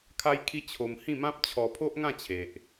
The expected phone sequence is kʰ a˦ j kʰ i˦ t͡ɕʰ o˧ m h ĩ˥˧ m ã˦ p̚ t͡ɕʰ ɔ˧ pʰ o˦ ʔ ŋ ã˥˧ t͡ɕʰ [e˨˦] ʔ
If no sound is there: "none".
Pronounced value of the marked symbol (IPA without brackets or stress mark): e˨